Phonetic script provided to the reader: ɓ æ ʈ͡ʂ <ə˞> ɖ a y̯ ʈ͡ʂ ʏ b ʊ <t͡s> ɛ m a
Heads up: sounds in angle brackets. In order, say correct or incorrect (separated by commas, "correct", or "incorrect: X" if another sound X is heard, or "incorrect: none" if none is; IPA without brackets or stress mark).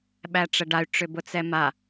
incorrect: ə, correct